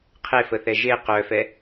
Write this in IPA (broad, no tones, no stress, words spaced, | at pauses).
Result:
qʰefəθɛ ʒe qœfɛ